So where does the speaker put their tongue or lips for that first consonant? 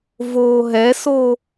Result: lips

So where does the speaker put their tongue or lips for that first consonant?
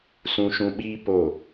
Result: tongue tip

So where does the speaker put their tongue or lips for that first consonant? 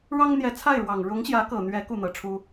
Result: retroflex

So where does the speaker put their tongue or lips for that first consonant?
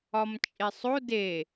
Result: lips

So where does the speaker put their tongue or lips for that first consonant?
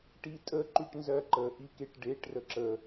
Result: retroflex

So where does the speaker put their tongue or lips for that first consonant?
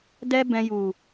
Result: tongue tip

